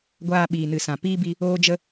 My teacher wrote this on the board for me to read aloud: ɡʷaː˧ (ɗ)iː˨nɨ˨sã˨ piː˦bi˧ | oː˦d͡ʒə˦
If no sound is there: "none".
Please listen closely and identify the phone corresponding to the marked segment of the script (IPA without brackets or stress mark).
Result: ɓ